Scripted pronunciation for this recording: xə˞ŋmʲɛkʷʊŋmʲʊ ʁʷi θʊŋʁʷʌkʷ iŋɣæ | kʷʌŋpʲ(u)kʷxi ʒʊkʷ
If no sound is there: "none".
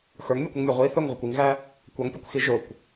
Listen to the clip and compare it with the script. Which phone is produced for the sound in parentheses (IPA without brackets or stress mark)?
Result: u